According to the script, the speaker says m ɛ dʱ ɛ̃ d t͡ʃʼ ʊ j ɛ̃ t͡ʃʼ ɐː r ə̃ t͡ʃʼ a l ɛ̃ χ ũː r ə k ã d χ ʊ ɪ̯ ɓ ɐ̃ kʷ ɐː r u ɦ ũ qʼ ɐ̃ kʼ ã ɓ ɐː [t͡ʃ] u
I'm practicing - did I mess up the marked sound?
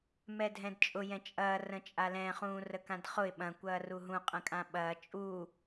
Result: yes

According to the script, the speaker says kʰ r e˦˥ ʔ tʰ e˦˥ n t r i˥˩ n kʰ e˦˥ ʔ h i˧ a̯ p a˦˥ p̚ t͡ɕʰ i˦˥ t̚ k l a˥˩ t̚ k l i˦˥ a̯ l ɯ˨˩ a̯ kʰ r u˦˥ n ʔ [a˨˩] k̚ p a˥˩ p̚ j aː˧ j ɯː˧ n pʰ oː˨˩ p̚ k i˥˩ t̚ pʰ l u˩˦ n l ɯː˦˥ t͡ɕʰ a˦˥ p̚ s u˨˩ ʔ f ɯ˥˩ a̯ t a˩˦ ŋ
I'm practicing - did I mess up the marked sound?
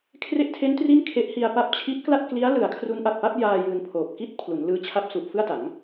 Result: no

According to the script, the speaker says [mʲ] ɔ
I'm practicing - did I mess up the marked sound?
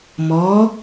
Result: yes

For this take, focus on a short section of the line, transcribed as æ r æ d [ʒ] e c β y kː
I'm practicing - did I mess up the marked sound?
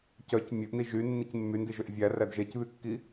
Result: no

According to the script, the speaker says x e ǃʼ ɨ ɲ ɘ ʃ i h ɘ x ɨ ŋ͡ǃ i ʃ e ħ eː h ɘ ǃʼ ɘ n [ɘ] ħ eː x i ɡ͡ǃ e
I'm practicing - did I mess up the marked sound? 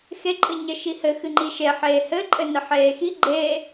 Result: no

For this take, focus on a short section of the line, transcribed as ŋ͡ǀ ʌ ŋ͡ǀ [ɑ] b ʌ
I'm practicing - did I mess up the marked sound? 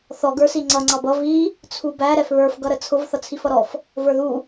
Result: no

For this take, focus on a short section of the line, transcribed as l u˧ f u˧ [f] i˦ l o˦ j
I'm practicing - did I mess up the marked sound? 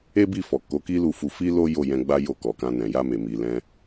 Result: no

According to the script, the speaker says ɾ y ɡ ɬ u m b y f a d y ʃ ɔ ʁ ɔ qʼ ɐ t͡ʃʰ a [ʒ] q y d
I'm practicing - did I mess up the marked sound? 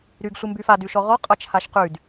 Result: yes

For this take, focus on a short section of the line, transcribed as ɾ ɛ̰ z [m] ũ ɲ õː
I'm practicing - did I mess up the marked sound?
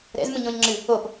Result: no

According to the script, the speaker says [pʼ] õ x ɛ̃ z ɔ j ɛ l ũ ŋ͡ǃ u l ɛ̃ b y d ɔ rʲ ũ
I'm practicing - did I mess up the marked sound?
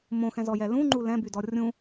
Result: yes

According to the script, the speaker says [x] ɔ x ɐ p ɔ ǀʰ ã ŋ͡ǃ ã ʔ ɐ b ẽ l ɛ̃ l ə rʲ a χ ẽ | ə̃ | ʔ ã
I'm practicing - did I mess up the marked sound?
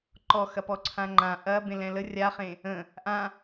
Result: yes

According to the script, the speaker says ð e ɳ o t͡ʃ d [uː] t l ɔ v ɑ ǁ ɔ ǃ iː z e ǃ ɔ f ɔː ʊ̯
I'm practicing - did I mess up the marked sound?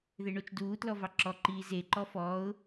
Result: no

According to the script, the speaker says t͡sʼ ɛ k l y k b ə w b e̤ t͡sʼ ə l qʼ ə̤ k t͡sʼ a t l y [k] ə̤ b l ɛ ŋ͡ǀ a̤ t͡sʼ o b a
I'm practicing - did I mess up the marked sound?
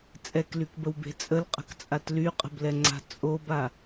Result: yes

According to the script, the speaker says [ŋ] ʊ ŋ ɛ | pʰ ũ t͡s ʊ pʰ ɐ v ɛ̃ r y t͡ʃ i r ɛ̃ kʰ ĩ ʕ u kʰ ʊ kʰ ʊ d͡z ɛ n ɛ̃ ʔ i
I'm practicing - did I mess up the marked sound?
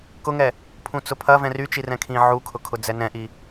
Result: yes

